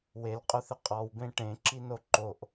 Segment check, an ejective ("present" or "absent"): present